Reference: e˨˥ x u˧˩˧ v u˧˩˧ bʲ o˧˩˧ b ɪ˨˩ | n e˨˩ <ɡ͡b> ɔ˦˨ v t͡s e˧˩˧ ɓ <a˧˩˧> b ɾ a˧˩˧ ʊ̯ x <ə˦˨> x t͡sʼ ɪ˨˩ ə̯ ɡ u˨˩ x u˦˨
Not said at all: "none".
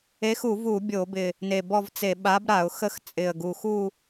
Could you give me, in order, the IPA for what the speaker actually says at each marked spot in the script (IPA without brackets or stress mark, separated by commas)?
b, a˨˥, ə˦˨